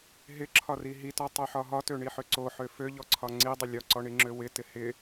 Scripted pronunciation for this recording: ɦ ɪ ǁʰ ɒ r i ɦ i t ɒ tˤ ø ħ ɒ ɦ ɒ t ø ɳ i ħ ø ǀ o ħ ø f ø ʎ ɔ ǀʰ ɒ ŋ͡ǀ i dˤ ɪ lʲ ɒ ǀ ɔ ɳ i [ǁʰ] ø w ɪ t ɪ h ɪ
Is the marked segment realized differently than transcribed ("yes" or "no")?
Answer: yes